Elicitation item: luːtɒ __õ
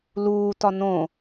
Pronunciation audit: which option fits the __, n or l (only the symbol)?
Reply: n